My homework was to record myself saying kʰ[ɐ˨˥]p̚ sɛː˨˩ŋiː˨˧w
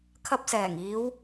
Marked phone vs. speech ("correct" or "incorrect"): incorrect